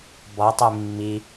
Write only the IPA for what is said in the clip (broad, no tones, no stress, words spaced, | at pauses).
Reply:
bɔtˤi mːi